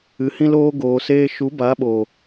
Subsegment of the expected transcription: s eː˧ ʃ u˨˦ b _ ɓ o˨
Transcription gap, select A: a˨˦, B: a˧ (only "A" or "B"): A